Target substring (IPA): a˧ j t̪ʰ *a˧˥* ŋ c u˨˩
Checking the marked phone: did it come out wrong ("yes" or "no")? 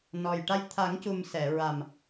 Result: yes